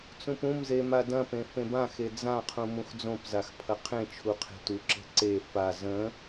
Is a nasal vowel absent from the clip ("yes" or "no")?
no